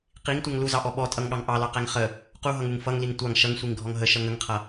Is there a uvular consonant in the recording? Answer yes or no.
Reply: yes